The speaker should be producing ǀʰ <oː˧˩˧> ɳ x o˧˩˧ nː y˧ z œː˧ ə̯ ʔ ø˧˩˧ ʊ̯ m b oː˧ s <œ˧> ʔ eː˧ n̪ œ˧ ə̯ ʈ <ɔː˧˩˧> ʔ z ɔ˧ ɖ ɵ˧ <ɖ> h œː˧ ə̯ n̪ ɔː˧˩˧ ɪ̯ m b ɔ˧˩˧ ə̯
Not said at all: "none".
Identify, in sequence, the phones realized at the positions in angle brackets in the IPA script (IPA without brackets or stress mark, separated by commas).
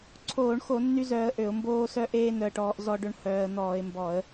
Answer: oː˧˩˧, œ˧, ɔː˧, ɳ